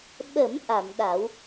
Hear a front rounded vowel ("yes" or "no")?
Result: no